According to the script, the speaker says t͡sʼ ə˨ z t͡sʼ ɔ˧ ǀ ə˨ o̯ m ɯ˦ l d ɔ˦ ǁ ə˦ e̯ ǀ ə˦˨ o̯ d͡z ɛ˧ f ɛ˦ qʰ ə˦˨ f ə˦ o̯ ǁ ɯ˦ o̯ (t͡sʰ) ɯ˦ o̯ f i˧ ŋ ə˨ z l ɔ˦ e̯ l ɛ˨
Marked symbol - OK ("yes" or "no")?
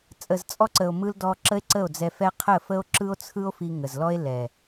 yes